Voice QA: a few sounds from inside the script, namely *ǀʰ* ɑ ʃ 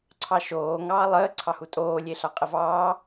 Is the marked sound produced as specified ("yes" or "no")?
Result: yes